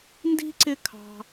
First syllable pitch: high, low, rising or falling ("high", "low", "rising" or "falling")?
high